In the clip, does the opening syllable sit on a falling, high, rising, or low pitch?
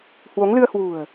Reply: rising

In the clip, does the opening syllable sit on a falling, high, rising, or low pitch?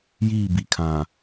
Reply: falling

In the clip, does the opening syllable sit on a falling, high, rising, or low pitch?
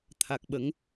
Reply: low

